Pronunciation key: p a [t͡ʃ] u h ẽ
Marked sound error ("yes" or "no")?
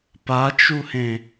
no